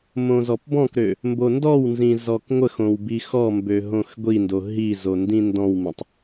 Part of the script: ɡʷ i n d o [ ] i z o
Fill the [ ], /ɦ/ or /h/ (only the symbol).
ɦ